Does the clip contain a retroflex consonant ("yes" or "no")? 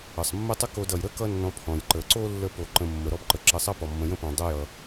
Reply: no